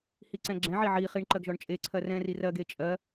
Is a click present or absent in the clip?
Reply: present